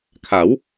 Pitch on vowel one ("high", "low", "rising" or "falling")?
rising